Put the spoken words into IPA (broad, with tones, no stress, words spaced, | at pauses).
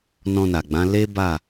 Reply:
nɔ̃˧na˨ɡ͡bã˨˦ le˦ ba˦˨